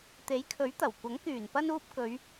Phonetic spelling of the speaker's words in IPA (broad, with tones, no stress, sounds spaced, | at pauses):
t̪ e˨˥ j kʰ ɵ˨˥ ɥ t̪ ɐ˨˩ w kʷ ɐ˨˥ ŋ k yː˨˩ n p ɐ˧ n uː˧ p̚ k ɵ˨˧ ɥ